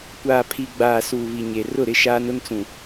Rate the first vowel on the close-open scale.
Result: open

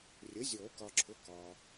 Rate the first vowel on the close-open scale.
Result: mid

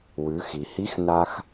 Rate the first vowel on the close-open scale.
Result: close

